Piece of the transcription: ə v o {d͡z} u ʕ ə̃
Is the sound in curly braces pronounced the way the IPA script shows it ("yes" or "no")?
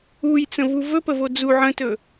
yes